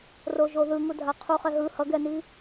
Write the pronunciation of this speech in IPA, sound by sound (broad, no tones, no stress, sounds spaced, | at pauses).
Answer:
r o ʒ o ð ɯ ŋ u dʱ a qʰ u χ ɛ ɦ ɯ h ʌ ɡ ɛ n i